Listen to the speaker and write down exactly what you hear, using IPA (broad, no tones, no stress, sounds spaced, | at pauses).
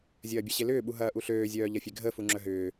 zʲ ɐː bʲ ɐ ɕ e l ʏː ɓ u ɦ ɐː ʔ u ɬ øː zʲ œː ʎ ɐ fʲ e ɡʱ ə f u ŋ͡ǁ œ ɦ ʏː